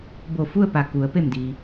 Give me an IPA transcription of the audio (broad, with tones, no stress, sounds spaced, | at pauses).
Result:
b o˧˩ f u˥˨ ə̯ p a˩ k u˩˧ ə̯ p e˧˩ m d iː˩